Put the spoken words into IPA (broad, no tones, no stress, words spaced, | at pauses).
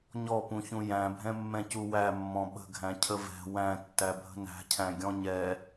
ɲɔpũçũ jæ̃bʱɛ̃mːɛ̃cu wæmːɔ̃ ɓə̤ɡʱæ̃ cʰəvɛ̤ wæ̃tːæ bʱə̤næ̤cʰæ̃ ɡʲɔ̃ɲɛ